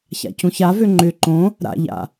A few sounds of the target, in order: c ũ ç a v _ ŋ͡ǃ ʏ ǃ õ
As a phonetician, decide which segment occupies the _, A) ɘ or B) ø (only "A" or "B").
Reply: B